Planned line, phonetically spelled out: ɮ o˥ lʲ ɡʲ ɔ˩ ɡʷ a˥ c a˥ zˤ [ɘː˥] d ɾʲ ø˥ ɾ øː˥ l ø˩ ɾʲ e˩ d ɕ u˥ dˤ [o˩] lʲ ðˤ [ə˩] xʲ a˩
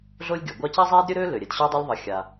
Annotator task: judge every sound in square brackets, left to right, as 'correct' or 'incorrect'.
incorrect: eː˥, incorrect: o˥, correct

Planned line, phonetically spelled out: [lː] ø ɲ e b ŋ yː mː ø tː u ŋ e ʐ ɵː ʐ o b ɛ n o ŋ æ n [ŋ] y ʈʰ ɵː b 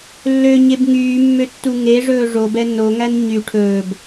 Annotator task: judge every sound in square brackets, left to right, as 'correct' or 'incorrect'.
correct, incorrect: ɲ

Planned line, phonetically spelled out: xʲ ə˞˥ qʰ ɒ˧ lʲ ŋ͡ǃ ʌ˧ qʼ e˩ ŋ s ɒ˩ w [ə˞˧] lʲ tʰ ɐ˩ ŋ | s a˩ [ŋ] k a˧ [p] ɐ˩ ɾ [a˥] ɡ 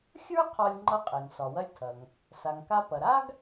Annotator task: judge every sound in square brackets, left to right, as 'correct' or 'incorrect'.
incorrect: ɐ˧, correct, correct, correct

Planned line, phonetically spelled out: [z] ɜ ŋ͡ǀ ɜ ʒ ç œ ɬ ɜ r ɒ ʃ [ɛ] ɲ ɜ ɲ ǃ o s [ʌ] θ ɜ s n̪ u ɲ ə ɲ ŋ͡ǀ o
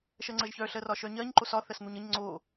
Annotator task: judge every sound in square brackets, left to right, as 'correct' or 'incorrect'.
incorrect: ʃ, incorrect: œ, incorrect: ɒ

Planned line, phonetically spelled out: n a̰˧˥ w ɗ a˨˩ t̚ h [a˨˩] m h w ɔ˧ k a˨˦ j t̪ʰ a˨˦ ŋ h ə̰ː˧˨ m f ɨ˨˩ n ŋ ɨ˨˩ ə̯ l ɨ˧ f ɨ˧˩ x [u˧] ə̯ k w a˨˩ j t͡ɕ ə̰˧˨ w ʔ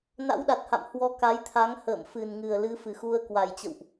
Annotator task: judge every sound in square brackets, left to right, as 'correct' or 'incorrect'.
incorrect: a̰˧˨, correct

